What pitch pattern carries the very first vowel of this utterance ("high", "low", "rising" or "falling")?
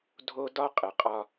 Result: high